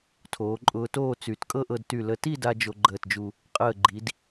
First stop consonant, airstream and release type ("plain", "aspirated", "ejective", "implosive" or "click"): aspirated